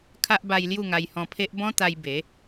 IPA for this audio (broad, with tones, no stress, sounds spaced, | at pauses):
kʰ a˦ ʔ b a˧ j l j u˥˧ ŋ a˧ j h ɔ̃˧ pʰ e˦ ʔ b ɔ̃˦ t̪ a˧ j b e˨˦